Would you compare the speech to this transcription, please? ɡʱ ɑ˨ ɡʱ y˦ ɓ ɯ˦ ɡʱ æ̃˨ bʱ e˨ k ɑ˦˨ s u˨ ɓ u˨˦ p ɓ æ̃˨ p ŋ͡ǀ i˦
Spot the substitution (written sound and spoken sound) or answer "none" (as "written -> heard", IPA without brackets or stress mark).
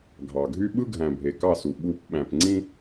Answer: i˦ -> ĩ˦